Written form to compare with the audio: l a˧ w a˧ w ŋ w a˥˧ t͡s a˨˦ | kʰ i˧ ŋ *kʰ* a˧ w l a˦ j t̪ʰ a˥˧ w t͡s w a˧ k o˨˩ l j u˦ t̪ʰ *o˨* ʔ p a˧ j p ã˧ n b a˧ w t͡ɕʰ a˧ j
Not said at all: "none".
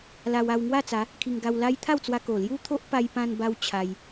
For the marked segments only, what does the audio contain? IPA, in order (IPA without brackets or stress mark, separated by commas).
ɡ, o˦